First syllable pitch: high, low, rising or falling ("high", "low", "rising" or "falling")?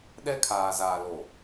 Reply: high